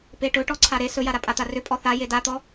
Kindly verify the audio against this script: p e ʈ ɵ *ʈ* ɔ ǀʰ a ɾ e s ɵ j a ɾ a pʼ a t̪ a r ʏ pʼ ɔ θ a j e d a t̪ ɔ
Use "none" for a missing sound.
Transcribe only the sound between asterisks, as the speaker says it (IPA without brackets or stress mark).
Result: ʈ